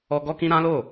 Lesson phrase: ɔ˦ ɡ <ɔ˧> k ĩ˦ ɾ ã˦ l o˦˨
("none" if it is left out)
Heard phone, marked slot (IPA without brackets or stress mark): ɔ˦